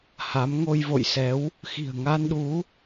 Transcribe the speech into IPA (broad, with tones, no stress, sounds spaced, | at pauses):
h a˨˦ m ŋ o˧ j v o̰˧˨ j s ɛ˨˦ w | x i̤˨˩ ə̯ ŋ a˧ n ɗ u˨˦